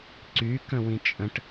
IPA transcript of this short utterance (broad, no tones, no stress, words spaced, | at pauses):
ǀy kə̃wĩt͡ʃʼə̃ʈ